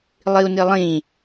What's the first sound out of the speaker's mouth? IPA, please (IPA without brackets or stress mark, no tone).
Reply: lˠ